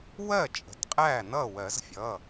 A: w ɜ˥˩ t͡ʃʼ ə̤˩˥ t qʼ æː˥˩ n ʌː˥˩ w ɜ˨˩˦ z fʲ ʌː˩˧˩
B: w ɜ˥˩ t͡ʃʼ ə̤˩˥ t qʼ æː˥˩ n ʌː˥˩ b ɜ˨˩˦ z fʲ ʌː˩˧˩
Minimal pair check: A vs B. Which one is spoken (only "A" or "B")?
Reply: A